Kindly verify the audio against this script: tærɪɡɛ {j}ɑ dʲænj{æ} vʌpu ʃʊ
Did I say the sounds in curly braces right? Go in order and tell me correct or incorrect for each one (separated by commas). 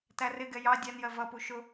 correct, incorrect